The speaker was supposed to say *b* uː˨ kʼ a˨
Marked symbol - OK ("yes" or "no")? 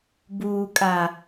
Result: yes